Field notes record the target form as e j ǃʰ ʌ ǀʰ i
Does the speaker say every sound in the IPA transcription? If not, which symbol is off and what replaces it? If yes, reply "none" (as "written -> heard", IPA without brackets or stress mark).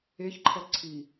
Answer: j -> ç